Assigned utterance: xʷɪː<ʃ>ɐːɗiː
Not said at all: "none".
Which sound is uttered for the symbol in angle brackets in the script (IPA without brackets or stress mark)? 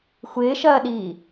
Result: ʃ